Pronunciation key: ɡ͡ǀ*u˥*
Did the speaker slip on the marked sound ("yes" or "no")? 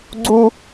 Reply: no